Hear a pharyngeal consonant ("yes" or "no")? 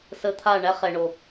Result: no